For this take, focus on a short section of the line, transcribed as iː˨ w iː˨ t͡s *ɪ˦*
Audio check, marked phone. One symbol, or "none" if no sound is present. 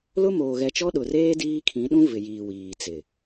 ɪ˨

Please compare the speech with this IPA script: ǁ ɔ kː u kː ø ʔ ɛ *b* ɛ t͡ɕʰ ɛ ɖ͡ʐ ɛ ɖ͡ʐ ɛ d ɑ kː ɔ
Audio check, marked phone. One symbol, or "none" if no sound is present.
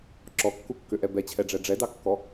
b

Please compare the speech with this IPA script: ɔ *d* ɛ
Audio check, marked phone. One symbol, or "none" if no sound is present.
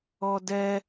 d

